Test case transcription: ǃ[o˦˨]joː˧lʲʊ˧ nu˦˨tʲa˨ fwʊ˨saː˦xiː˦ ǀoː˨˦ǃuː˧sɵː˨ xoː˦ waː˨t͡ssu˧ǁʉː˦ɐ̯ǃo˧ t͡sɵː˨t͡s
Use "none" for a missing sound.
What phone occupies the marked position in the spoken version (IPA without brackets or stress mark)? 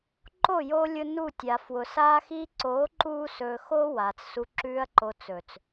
o˦˨